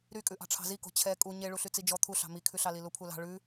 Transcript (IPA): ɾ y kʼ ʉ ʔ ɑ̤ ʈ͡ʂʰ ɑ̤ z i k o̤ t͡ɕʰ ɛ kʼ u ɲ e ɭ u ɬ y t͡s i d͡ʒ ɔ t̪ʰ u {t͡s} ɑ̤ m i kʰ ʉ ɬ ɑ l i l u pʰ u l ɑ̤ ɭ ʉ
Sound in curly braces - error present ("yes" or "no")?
yes